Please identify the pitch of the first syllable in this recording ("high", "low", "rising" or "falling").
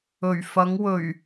low